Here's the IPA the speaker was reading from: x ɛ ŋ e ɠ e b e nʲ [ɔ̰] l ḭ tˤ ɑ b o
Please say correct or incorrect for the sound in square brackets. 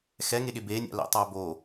incorrect: ɑ̰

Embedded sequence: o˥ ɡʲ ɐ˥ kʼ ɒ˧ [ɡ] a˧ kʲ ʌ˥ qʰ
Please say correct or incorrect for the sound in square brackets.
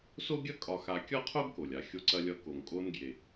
incorrect: x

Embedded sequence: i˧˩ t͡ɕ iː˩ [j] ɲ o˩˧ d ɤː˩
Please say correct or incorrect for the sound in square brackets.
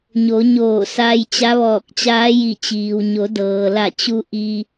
incorrect: w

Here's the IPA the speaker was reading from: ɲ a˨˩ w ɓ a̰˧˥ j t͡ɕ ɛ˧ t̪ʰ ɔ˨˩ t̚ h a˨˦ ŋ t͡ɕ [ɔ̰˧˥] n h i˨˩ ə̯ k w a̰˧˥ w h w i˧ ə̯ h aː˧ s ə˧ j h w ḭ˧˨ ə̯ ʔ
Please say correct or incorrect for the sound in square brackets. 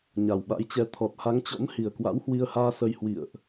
correct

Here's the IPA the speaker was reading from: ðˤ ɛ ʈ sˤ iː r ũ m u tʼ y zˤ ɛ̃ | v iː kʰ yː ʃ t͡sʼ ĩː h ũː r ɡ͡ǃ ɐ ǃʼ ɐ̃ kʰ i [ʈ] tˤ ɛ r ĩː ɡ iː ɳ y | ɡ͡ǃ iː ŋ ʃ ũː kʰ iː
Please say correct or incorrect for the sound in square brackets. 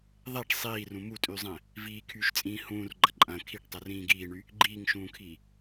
correct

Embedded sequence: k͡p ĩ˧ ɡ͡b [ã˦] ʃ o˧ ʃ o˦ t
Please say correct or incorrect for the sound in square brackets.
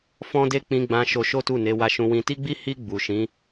incorrect: ã˧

